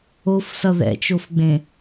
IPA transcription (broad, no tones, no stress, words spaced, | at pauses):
ofsʌ ðɛ̰t͡ʃofɡ͡bẽ